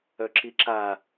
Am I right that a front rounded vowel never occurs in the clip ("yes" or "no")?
no